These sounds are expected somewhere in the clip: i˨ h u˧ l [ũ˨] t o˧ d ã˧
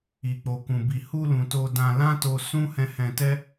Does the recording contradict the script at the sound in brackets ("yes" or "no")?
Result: no